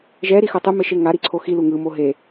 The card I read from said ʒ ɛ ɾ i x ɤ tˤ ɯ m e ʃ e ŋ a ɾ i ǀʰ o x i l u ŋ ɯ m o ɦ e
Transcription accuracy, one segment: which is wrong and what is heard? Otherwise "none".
none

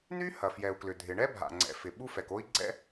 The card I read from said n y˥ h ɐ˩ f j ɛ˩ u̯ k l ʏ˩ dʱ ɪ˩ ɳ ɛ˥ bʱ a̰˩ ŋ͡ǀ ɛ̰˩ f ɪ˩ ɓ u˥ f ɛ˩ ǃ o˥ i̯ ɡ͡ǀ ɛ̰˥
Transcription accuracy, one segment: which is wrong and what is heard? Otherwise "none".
ǃ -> k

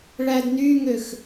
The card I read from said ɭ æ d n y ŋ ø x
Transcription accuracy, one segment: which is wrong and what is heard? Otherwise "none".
none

